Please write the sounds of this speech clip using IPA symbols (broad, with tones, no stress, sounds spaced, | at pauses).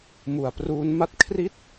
m u˩˦ a̯ p r uː˦˥ n m a˥˩ t̚ kʰ r i˥˩ t̚